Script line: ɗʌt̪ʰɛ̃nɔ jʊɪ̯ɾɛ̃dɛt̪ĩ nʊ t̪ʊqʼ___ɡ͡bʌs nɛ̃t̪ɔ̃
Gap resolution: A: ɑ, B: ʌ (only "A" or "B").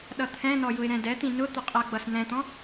B